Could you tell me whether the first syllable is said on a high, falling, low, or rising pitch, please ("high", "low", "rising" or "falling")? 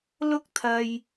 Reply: high